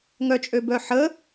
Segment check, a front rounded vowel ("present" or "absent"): present